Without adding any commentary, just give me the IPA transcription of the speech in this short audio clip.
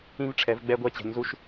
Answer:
ĩ˧ v ʈ͡ʂʰ ɛ˩˧ v ɡ͡b ɛ˧ ɡʷ ɛ˧ t͡ɕ ɛ̤˩˧ ɲ z u˧ ʃ

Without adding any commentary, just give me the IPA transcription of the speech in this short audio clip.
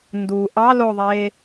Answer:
n d u ʔ ɑ l o ðˤ e

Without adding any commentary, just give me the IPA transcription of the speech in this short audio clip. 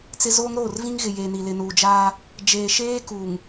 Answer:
t͡s ɪ˦ z o˦ ŋ ɾ oː˦˨ r v ĩ˦ ŋ ɣ ɪ˨ j eː˨ n i˨ l ɪ˨ n uː˨ d͡ʒ a˦ | d͡ʒ eː˨ ʃ eː˦ k u˨ ŋ

